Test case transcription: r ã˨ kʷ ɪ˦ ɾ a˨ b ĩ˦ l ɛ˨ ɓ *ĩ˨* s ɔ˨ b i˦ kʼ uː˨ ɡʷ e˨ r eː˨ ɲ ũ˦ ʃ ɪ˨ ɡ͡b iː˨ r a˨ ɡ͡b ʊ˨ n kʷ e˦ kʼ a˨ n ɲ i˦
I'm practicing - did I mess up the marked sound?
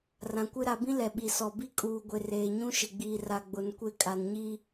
yes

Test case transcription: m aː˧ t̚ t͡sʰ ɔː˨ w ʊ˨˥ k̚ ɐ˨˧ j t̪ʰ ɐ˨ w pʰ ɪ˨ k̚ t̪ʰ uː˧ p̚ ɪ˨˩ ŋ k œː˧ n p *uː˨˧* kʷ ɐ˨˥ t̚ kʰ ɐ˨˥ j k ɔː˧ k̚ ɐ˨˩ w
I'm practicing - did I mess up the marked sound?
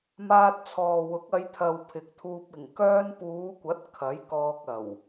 no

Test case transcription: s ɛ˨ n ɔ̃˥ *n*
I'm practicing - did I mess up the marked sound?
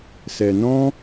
yes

